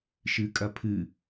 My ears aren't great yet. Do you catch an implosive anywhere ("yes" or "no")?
no